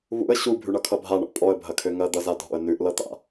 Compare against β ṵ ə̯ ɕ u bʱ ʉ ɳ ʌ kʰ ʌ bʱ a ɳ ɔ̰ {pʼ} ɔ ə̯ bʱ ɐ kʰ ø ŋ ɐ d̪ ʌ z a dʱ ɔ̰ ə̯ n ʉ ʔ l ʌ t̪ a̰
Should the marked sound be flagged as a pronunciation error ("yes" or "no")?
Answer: no